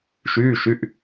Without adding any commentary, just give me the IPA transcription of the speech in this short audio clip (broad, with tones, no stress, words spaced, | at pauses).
ʃyː˩˧˩ ʃy˩˧˩ʔ